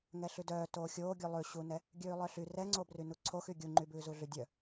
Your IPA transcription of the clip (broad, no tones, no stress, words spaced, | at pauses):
ŋɛɬʉdœː toːxʲoːɡʲʉ lˠʉɕunɛ | ɡʲʉːlˠœɬy rɛŋ͡ǀo brynuǀʰoxy ɡʲuŋ͡ǃybʉː zuɮydʲœ